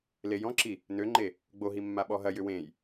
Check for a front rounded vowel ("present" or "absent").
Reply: present